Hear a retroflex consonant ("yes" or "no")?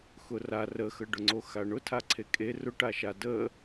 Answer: yes